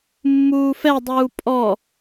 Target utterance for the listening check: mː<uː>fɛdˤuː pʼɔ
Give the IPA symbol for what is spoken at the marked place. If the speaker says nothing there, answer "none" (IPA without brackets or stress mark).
uː